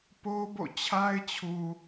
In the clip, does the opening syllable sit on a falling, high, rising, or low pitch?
high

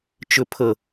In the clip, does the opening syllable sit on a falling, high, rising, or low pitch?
high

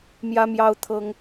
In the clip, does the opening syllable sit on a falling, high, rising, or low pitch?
high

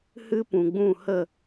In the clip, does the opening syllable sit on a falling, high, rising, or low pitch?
high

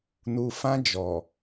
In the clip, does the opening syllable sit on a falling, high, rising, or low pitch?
low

